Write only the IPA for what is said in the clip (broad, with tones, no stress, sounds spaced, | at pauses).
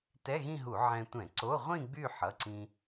t ɛ˧˥˧ ɣ ĩ˥˧ ɦ u˧˩˧ ʕ ɛ̃˧ tʷ ɛ̃˧˩˧ ǀ o˧˥˧ ʁʷ ĩ˥˧ ɡ͡b y˥˧ ħ ʌ˩˧˩ ǀ ĩ˧